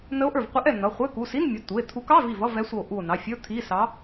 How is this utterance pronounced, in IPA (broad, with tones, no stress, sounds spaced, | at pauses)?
n ə˧˥ o̯ ʔ ə˞˧˩ v qʷ ɛ˧˥ ʔ ɛ˧˩ n ʌ˩˧˩ χʷ ɛ˧˥˧ k u˩˧˩ s i˧˥˧ n mʲ ʌ˩˧˩ t̪ u˩˧˩ e̯ t̪ʰ u˧˥ k ɑ˧˥˧ v i˧˩ v ʌ˧˥˧ v ɛ˧˥ sʷ ʌ˧˩ o̯ ʔ u˧˩ o̯ n ɑ˩˧˩ fʲ ə˞˧˥˧ t̪ʰ i˧˥˧ s ɑ˧˥